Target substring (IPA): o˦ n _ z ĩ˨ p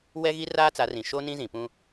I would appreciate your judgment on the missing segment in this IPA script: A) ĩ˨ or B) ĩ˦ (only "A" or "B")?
B